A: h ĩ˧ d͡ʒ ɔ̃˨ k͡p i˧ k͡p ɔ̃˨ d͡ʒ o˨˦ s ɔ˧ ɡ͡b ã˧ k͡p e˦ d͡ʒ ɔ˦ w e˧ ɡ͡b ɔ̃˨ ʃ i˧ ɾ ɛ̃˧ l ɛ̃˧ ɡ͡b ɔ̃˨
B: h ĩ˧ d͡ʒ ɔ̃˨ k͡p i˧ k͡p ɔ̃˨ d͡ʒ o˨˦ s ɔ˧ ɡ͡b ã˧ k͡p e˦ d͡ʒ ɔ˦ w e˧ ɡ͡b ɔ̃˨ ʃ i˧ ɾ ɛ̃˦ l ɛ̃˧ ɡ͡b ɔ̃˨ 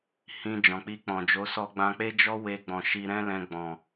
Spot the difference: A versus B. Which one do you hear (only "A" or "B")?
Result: B